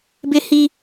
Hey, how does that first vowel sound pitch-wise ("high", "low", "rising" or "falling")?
high